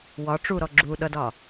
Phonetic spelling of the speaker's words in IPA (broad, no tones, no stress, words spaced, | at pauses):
wɒ ʈ͡ʂuɾɔ ɡ͡ǁu ɗʌdɒ